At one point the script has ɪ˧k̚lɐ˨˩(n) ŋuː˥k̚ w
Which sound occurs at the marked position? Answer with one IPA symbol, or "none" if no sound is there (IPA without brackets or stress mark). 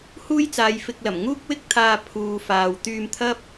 m